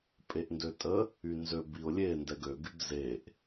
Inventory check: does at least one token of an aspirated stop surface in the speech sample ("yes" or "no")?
no